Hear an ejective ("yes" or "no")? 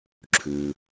no